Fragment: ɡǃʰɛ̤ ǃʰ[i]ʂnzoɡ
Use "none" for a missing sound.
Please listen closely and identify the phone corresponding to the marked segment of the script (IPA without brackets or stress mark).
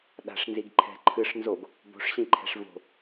ɨ